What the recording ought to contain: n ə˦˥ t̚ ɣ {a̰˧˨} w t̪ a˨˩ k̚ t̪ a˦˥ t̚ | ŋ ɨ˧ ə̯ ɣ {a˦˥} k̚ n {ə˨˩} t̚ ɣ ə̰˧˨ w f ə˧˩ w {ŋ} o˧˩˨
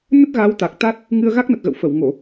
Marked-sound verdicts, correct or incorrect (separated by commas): incorrect, correct, correct, correct